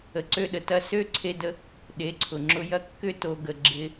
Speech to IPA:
ə˨ ǀ ø˧ ɗ ə˨ t ɐ˧ s ø˦ ǀʰ e˧ d ə˧ | ɗ e˨˦ ǀʰ ʊ˨ ŋ͡ǁ ʊ˧ j ɐ˧ kː ʏ˧ t o˨ ɡ ə˨ ɡ͡ǁ ɪ˧

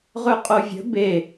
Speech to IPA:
ʁ ɵ qʼ o vʲ ə̤ b e

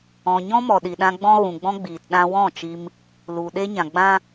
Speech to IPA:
ɔ̃˨ ɲ ɔ̃˦ m ɔ˨ ɗ i˨ ɗ ã˧ ɡ͡b ɔ̃˧ ɣ ũ˨ ɡ͡b ɔ̃˧ ɡ͡b iː˨ t ɗ ã˧ w ɔ̃˦˨ t͡ʃ i˧ m | l u˨ ɗ e˧ ɲ ã˨ ɡ͡b ã˦

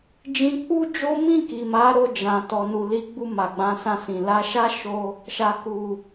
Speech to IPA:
d͡ʒ ĩ˧ k͡p u˦ d͡ʒ o˦ m ĩ˦˨ k i˨ m a˨˦ ɾ o˧ d͡ʒ ã˨ t ɔ˨ n u˨ l i˨˦ ɡ͡b u˧ m a˨ ɡ͡b ã˨˦ s ã˧ s ĩ˨ l a˨˦ ʃ a˦ ʃ o˧ | ʃ a˨ k u˨

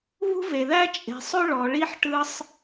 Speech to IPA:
β ṳ˥ v e˩ ð æ˥ t͡ʃʼ e̤˩ sˤ ɵ˥ ɭ ɔ˩ ɭ i˥ ħ ʈ ɯ˧ sˤ

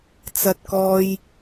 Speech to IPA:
t͡s ɐ˥ t̚ k ɔː˥ j

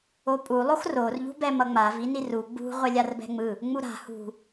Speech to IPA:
o pʼ u lˠ o x r o r ʎ ṳ b ɛ m ʌ ŋ͡m a v i n i r u ɡ͡b ṳ ʁʷ ɛ lʲ a r b ɛ̤ ŋ͡m ɯ | ŋ͡m u ɾ a̤ h ṳ

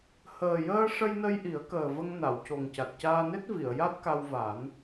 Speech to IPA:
h əː˨˩ j əː˧ ʂ ə˧ j n ə˧ j ʔ i˨˩˦ ə̯ k əː˨˩ v ə˧ ŋ n a˨˩˨ w c o˨˩ ŋ c a˨˩ t̚ c aː˧ n e˦˥ t̚ v i˨˩˨ ə̯ j a˦˥ t̚ k a˧ w v a˨˩˦ n

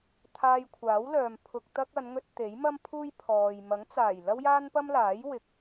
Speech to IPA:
t̪ʰ aː˧ j kʷʰ aː˨˥ w l œː˨ m pʰ ʊ˧ k̚ t̪ ɐ˥ k̚ ɐ˨˧ n ŋ ɵ˧ t̚ t̪ e˨˥ j m ɐ˥ m pʰ uː˥ j pʰ ɔː˨ j m ɐ˨˥ ŋ t͡s aː˨˩ j l ɐ˥ w j aː˥ n p ɐ˥ m l aː˨˥ j w ɪ˨˥ k̚

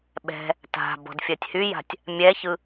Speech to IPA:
ɓ ɛ̤ | t a̤ b ɔ̤ d fʲ ɜ tʲ h y j a̤ tʲ | mʲ ɛ ç ɯ

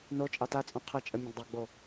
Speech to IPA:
n o t͡ʃʼ ɑ t a t͡sʼ õ qʰ ə t͡ʃʼ ə mʲ ə̃ ɡ dˤ e ɡ͡b o

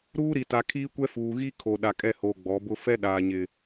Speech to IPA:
ɾ uː˦ ɾ i˨ t a˨ kʰ iː˦ kʷ ɛ˦ f uː˨ ɣ i˦ kʰ o˨ ɗ a˨ kʼ ɛ˦˨ h oː˨ ɡ͡b ɔ˨˦ b ʊ˦ f ɛ˦ ɗ aː˨ ɲ ɪ˨

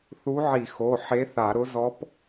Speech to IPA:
θ u˧˥ ʕ i˧˩˧ x o˩˧˩ ħ e˧˥ θ a˧˩˧ ɾ ʊ˧˥ z ɔ˧˥ p

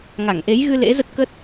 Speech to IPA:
ŋ a˧˩ ŋ ʔ e˨˦ j ɣ ɨ˧ l ḛ˧˥ z ə˦˥ t̚ k əː˦˥ t̚

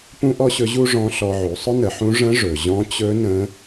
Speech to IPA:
p ũ˥ ʔ ɔ˥ ɕ ɵ˧˥ ʑ u˥ ʐ ɔ̃˧˥ ɬ ɔ˧ ʕ u˩˧ sˤ ʊ˥ n ə˩˧ ħ ũ˧˥ ʐ ə̃˧˥ ʐ ɵ˩ ʑ ɔ̃˧˥ t͡ɕ ɵ˧˥ n ə̃˧˥

